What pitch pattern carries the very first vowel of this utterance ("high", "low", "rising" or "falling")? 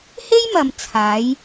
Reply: high